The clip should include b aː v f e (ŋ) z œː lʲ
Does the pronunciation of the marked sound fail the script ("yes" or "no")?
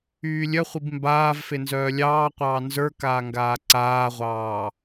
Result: yes